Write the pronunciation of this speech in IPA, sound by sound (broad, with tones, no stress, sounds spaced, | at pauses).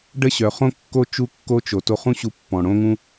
ɖ ə˦ ɕ œ˨ χ õ˦ kː o˦ t͡ʃ u˧ kː o˧ t͡ʃ o˨ t o˧ χ ũ˦ ɕ u˧ pː ɔ̃˨ ɽ õ˦ ŋ ũ˦